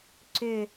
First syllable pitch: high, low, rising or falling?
low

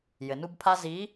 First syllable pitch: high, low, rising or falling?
low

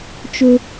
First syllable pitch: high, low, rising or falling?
high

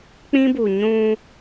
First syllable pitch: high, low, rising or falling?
high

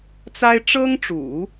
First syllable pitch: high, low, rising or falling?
high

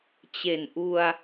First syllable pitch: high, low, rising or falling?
low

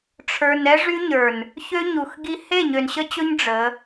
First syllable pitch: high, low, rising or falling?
low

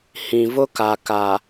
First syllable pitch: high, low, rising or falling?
low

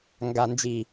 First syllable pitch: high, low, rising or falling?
low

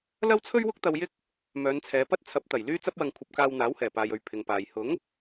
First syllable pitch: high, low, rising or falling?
high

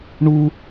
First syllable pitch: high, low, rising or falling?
high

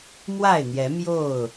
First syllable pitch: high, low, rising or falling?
falling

